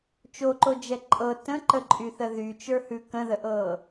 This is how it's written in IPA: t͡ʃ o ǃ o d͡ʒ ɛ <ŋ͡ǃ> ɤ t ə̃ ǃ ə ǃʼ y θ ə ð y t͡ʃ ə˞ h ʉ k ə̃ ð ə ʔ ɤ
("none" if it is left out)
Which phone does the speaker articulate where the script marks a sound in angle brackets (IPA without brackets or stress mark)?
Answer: ǃʼ